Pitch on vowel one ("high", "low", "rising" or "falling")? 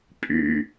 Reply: low